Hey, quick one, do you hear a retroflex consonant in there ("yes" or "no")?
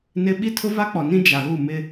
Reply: no